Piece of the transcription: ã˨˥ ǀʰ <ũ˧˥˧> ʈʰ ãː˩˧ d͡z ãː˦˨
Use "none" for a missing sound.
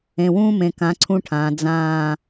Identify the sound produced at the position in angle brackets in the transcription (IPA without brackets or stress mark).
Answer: ũ˧˥˧